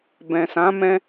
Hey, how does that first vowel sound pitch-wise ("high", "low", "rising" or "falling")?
low